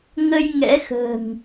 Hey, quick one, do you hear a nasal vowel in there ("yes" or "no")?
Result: no